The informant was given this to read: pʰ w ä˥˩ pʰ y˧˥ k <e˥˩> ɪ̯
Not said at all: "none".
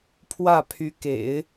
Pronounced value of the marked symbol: ḛ˨˩˦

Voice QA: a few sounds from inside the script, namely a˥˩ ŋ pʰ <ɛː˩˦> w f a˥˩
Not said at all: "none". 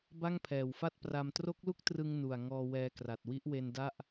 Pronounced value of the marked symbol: ɛː˨˩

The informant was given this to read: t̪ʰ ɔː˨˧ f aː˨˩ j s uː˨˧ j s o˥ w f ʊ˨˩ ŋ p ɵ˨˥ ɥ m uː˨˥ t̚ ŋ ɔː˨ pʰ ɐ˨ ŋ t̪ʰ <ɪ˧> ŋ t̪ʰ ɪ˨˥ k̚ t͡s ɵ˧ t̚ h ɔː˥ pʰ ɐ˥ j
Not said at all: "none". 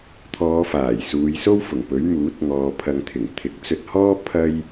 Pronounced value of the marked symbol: ɪ˨˩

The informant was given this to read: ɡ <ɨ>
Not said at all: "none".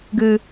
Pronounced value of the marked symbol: ɨ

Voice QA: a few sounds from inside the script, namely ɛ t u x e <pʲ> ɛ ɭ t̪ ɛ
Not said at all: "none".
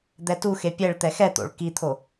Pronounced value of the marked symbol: pʲ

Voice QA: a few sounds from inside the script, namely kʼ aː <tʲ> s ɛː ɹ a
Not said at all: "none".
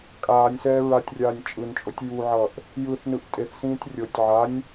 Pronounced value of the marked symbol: nʲ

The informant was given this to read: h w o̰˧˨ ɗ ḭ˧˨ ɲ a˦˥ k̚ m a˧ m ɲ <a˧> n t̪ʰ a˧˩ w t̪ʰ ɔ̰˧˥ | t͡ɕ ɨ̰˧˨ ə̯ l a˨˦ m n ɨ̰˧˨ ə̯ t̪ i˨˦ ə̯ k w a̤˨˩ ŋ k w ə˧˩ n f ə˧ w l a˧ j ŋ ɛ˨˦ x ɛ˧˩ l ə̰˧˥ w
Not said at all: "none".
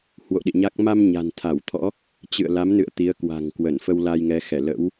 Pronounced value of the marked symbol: a̤˨˩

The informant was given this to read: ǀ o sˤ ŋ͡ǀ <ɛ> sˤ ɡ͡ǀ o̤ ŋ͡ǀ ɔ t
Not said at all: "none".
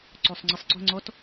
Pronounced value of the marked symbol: ɘ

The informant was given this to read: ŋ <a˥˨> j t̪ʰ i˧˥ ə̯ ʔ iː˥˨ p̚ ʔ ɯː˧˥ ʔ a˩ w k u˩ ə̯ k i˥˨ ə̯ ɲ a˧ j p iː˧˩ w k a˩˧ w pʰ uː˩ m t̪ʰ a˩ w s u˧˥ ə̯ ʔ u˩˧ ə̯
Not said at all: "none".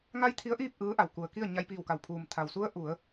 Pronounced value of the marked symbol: a˥˨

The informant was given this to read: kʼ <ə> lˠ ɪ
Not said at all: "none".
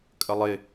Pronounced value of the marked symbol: ə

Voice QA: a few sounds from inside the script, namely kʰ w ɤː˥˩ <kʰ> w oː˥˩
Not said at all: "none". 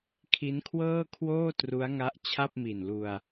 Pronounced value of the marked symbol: kʰ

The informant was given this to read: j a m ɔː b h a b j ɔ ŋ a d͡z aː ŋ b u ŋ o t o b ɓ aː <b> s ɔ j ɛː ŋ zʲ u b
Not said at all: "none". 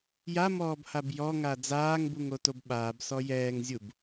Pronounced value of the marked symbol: b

